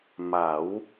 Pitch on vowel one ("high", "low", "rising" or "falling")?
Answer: rising